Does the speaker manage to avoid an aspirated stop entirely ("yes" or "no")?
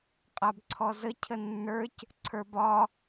no